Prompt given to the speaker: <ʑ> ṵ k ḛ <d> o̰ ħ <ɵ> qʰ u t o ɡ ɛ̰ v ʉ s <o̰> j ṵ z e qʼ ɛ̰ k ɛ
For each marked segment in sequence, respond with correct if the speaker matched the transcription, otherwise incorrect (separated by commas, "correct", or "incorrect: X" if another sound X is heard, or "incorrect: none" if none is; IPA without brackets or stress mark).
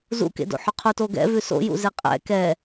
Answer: incorrect: z, correct, correct, correct